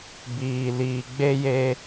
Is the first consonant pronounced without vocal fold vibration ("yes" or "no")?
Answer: no